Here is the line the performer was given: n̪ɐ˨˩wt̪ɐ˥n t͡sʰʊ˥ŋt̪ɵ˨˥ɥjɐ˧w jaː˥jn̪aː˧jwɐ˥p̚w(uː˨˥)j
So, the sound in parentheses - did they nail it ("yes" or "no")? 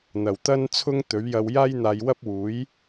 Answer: yes